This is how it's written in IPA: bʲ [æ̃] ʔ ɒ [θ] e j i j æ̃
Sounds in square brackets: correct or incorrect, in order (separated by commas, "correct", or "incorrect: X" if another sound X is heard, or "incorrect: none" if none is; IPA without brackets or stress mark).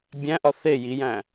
correct, correct